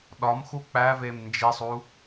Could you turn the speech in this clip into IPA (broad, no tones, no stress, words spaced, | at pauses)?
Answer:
ɗɒmxu k͡pævem nd͡ʒisˤu